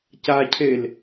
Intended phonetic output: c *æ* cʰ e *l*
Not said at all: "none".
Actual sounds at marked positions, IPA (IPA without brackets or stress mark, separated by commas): a, l